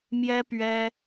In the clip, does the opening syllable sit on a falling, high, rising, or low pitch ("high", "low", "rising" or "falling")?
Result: high